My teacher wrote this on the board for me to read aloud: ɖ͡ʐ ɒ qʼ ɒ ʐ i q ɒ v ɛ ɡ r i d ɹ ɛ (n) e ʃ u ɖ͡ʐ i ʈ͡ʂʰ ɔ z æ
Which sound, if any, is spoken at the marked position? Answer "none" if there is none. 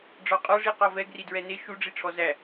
n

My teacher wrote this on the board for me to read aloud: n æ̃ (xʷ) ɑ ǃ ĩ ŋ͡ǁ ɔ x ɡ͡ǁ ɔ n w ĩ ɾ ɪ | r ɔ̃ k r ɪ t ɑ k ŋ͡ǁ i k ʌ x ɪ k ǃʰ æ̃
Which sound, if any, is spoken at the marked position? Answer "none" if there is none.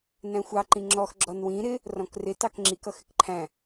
xʷ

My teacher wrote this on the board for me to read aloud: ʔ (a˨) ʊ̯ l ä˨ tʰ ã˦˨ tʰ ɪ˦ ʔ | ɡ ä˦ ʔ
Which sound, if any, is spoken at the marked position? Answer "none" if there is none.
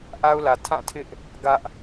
a˦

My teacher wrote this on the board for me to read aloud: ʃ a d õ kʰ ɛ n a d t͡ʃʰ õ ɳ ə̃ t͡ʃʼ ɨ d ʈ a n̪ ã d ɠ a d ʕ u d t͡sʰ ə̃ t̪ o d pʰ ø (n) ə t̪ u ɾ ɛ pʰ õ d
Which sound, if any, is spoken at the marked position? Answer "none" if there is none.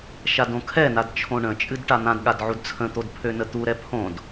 n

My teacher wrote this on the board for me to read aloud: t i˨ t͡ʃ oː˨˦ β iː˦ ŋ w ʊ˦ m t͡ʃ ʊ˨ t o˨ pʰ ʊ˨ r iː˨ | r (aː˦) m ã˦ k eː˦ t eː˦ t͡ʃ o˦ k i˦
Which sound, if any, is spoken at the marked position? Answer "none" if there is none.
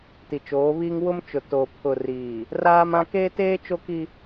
aː˦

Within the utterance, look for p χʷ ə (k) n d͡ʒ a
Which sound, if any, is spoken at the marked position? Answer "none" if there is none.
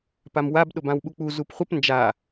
p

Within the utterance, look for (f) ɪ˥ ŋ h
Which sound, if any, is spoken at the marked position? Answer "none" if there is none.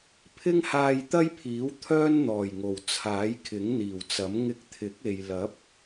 pʰ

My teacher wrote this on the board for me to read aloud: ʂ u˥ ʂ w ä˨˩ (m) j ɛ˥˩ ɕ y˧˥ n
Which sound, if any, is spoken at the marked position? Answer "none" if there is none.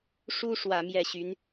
m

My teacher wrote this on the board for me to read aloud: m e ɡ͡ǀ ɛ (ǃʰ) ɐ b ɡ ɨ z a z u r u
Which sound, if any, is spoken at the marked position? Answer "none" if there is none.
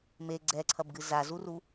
ǀʰ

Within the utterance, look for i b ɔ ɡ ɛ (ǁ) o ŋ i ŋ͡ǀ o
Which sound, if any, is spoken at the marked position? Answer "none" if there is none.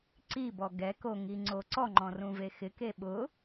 k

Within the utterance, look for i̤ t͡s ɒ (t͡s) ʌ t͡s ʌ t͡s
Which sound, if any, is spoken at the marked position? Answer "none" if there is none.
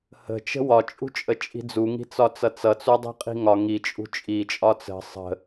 t͡s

